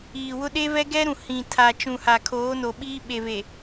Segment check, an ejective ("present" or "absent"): absent